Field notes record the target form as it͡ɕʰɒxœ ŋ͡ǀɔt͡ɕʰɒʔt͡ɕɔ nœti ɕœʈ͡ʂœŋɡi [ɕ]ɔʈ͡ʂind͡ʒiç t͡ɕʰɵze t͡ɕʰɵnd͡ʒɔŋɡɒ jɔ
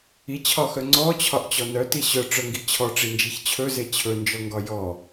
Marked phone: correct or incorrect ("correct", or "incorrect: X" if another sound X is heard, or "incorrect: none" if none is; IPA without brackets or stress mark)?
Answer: incorrect: t͡ɕʰ